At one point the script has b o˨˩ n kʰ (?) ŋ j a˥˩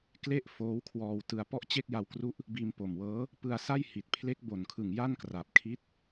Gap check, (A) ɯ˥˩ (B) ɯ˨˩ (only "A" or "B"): B